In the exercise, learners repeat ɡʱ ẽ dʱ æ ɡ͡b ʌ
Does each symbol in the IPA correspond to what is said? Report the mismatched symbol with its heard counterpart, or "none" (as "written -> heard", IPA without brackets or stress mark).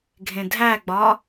ʌ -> ɒ